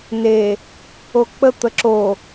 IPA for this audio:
n e | o k͡p ə t̪ ə ǁ o

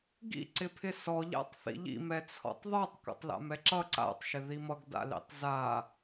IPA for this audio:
ɡ ḭ ǀ ɪ pʰ ɪ s ɔ ʎ a̰ tˤ θ ḭ ʎ ḭ m ɛ t͡sʰ ɔ̰ tˤ ðˤ ə˞ tˤ k ɔ̰ tˤ l a̰ m ɛ ǁ ʌ ǀ a̰ tˤ ʃ ɪ ð i m ʌ ɡ d a̰ l ḭ tˤ z a

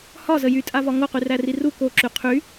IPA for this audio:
h ɒ z ə j y tʼ a v ɒ ŋ o q y r æ r i r u k o ǁ y qʰ y

